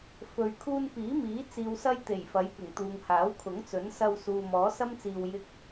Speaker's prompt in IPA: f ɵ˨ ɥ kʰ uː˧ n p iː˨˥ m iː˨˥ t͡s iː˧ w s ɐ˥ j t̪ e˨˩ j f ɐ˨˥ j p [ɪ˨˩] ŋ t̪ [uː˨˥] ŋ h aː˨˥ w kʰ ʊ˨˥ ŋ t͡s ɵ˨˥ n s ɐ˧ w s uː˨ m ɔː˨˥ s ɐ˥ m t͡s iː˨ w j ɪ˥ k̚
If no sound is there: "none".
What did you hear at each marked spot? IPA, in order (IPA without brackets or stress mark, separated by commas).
ɪ˨˩, uː˨